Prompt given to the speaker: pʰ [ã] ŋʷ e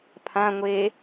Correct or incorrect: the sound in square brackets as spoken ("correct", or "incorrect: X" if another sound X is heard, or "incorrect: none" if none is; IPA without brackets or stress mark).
correct